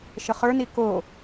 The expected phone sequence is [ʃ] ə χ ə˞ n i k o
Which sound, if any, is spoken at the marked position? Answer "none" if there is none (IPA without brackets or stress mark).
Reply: ʃ